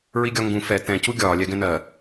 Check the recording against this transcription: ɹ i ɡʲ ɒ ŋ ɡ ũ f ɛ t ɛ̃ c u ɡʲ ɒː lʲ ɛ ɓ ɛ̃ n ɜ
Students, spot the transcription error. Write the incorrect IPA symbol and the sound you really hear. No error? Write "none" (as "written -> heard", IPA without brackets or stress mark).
ɓ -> ɡ